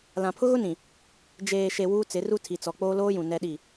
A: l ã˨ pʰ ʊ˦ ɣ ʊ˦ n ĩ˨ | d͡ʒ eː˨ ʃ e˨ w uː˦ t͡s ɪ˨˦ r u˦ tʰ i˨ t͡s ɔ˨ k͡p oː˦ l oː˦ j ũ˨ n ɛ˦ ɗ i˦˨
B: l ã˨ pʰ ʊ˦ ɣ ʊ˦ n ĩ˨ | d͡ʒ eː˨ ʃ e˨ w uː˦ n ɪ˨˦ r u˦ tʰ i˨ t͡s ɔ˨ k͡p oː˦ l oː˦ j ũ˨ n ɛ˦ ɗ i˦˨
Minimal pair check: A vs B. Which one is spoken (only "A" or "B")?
A